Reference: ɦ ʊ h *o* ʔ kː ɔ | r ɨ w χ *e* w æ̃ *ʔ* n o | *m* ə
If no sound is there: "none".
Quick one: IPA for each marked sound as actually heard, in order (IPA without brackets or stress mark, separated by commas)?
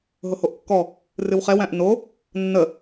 o, ɛ, ʔ, nː